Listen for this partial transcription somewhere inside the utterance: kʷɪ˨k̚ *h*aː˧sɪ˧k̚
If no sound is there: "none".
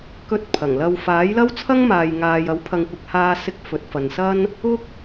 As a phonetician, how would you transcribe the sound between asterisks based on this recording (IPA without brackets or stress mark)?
h